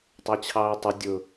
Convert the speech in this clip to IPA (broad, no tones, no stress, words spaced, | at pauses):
tˤɜt͡ɕʰɑːi̯tˤʊ dʲʊ